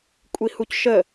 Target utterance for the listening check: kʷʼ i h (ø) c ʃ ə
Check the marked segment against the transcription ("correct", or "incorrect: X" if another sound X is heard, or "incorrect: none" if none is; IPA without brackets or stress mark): incorrect: u